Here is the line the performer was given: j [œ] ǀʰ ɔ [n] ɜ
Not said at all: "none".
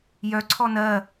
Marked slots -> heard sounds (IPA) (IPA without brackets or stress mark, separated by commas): œ, n